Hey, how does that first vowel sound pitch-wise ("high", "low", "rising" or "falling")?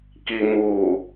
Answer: low